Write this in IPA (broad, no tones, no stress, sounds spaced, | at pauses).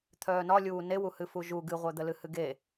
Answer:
t̪ʰ œː n ɒ lʲ uː n e w u h ɨ f u ʒ u ɡ ɨ ʁʷ œ d̪ ə l ɨ h ɨ ɡ e